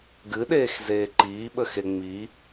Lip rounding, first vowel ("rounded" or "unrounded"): unrounded